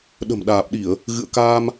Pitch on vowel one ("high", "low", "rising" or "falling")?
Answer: low